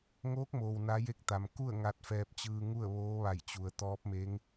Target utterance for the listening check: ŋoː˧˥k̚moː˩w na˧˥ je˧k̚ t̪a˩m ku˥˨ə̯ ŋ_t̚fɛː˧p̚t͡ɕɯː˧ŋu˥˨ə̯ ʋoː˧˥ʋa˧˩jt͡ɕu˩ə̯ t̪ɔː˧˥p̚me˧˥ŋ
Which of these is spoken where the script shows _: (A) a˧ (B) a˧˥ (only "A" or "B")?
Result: A